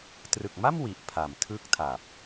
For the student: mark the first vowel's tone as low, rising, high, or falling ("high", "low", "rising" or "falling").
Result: low